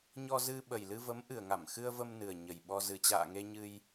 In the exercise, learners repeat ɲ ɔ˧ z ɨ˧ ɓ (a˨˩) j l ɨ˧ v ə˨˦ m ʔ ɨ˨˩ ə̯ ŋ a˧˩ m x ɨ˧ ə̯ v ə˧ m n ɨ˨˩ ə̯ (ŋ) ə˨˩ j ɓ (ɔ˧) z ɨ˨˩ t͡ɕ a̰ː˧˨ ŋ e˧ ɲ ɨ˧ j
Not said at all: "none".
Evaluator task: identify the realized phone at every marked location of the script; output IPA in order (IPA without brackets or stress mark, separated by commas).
ə˨˩, ɲ, ɔ˧